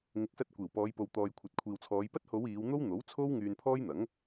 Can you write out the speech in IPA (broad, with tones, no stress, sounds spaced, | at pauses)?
ŋ ɪ˨˥ k̚ s ɐ˧ t̚ kʷ iː˨˩ w p ɔː˨˧ j p o˨ w t̪ ɔː˨ j kʷʰ ɐ˨ t̚ kʷʰ iː˨ w t͡sʰ ɔː˨˧ j p ɐ˥ t̚ h o˨˧ w iː˨˧ w n̪ o˥ w n̪ o˨˥ w t͡sʰ o˥ w ŋ yː˧ n pʰ ɔː˥ j n̪ ɐ˨˥ ŋ